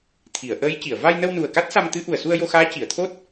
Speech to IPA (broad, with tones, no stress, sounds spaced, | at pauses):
t̪ʰ i˨˩˨ ə̯ ʔ əː˧˥ j c i˨˩˨ ə̯ v a˧ j n ə˧ w n u˨˩ ə̯ k a˦˥ t̚ s a˧ m t̪ ɨ˧˥ ʔ u˨˩ ə̯ s u˧ ə̯ j o˧ x aː˧˥ c i˨˩˨ ə̯ t̪ʰ o˦˥ t̚